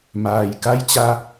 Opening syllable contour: low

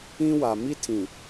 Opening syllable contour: high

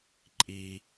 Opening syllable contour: low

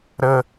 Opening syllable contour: high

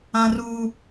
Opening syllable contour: high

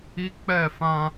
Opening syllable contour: high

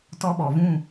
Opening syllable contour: high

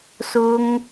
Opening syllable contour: high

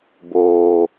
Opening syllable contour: low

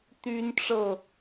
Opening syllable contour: high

